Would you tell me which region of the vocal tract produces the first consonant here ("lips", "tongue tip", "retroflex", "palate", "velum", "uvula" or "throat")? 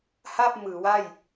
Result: throat